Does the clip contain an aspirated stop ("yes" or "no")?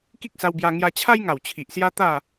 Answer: yes